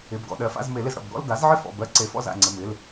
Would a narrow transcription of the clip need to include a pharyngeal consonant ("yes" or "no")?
yes